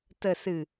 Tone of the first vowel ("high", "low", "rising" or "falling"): low